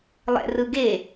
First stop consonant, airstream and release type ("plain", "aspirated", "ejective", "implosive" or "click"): plain